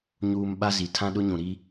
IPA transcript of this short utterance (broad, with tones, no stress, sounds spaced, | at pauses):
ɲ uː˨ m ɓ a˦ z i˨ tʰ ã˦ ɗ ʊ˦ ɲ ũ˨ ɾ i˦